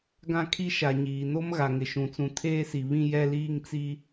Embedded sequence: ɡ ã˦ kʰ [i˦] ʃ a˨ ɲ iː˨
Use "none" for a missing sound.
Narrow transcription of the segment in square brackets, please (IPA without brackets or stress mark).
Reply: i˦